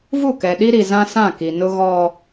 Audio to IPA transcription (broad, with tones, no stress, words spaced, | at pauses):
vu˦˨kɛ˨ɗi˦ɾi˨ zã˦sã˦˨ki˨nʊ˦ ɣɔ˦